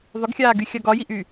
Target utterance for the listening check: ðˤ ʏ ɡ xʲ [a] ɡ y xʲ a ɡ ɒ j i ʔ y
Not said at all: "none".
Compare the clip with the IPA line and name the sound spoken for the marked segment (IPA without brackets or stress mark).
aː